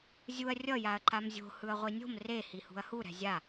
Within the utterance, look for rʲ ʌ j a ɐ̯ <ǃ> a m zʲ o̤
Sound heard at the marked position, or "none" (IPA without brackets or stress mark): ǃ